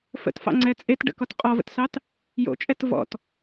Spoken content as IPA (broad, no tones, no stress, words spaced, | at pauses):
fə̰tfɑ̰ŋ͡ǀɛ t͡sʼet ɖə̰kɔt qʼɔvə̰tsɑt | jo̰t͡ʃʼɛt vɔ̰t